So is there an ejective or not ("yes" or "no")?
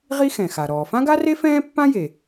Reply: no